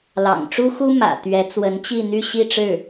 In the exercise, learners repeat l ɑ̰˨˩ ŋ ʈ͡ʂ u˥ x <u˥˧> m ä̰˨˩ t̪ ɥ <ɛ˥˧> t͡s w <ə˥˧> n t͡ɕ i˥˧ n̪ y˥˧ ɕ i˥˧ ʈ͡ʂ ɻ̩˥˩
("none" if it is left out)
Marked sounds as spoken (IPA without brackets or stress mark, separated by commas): u˥, ɛ˧˥, ə˧˥